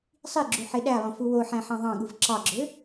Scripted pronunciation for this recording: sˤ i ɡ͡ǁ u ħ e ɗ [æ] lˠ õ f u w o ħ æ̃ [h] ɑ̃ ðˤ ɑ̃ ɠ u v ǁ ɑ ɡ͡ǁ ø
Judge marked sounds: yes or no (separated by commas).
yes, no